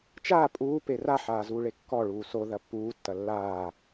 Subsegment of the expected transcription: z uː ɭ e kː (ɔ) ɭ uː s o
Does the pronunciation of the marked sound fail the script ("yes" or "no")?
no